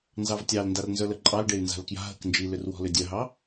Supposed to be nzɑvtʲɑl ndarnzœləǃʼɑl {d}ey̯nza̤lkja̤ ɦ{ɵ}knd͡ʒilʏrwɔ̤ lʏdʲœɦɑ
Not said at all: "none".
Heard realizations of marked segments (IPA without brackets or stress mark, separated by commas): ɖ, ə